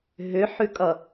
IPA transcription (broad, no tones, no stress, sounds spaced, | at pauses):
ɦ ʏ ħ ʉ kʼ ʌ